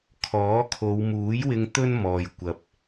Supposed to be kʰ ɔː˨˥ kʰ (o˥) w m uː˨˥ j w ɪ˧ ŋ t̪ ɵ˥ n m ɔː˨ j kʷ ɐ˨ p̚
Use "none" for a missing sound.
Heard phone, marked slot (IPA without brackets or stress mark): o˨˧